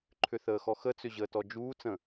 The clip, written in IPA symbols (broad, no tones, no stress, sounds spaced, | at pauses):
ǃʰ ʏ θ əː x ɔ x ə t͡s ʏ ʑ əː t ɔ d͡ʒ uː t͡s ə̃